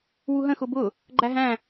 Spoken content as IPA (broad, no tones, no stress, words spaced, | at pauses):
wuɦə̃xʊ bʊ | ɡ͡ǃæɦæ̃